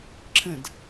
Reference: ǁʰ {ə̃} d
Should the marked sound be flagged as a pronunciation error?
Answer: no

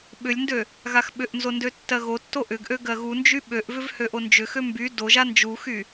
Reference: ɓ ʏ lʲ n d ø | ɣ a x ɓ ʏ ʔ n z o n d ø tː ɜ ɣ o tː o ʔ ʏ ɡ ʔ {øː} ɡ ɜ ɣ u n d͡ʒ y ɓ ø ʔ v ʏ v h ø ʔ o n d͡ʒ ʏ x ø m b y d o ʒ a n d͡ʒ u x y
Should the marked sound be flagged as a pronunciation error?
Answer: yes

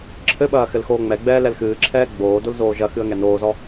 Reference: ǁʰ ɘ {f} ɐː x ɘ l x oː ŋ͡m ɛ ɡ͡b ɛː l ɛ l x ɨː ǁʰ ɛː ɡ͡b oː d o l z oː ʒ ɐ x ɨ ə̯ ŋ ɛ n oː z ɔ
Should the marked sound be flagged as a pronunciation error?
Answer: yes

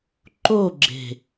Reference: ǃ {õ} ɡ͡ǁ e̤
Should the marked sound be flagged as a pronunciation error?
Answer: yes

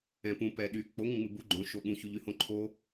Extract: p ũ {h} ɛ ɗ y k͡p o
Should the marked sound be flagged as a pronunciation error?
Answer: yes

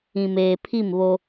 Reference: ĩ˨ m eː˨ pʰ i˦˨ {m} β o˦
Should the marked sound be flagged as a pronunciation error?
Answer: no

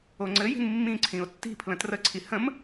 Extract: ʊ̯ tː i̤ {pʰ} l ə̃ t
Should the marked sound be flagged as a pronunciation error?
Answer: no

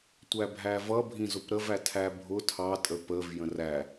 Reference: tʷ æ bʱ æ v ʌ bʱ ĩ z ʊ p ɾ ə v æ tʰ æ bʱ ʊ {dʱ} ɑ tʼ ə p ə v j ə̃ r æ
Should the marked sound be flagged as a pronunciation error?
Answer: yes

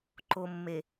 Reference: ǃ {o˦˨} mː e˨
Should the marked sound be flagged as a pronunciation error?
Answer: yes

